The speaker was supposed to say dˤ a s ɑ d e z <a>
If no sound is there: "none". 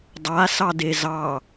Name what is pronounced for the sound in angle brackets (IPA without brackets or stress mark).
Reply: ɑ